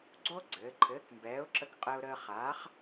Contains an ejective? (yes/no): yes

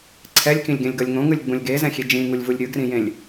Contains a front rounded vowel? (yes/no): no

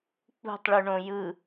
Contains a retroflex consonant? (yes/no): yes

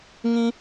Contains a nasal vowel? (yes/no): yes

